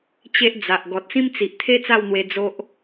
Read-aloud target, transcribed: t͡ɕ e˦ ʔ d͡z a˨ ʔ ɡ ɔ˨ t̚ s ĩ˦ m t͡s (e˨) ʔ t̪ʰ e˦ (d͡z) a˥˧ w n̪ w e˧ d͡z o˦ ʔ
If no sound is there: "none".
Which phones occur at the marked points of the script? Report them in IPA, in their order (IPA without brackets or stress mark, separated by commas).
i˨, t͡s